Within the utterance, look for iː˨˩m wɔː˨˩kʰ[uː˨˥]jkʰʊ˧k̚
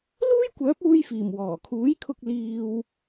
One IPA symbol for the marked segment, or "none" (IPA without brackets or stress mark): uː˨˥